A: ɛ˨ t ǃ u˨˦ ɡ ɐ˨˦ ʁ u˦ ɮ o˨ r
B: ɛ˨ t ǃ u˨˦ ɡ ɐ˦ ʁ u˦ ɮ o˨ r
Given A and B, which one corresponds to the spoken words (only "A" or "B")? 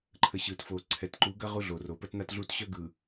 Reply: B